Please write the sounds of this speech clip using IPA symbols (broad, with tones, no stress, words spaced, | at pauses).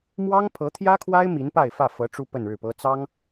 mwɑ˥ŋpʰɤ˧˥t̪ʰjä˥kʰwa˥ɪ̯ mi˧˥npa˥˧ɪ̯fä˥˩fɤ˧˥ ʈ͡ʂu˥pə˥˧nɻɻ̩˥˩pɤ˥ t͡sɑ˥ŋ